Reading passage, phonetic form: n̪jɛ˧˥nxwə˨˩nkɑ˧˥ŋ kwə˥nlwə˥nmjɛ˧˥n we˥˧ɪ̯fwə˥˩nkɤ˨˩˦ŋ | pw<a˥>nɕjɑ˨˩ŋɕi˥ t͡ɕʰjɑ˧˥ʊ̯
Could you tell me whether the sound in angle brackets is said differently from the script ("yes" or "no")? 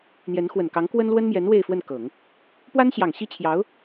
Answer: no